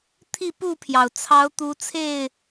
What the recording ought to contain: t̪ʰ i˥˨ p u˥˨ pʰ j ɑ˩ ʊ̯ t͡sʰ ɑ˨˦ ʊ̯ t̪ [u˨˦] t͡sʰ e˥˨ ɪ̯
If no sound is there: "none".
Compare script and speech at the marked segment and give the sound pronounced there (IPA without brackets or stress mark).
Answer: u˨˦